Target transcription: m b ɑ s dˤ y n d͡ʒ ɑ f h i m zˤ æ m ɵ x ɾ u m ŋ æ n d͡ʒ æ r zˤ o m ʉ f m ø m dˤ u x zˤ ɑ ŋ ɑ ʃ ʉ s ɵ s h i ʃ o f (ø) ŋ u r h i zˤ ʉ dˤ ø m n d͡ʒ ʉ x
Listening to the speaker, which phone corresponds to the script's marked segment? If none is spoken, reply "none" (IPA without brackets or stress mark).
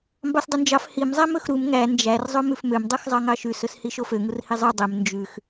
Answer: ø